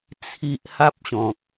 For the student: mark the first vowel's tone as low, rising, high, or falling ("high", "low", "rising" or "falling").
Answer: low